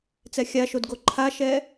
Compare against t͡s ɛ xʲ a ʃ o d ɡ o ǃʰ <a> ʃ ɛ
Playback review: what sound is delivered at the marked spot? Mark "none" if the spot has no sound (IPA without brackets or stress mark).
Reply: a